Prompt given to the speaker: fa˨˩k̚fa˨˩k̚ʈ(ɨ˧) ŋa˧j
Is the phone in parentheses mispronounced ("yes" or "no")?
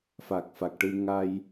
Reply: no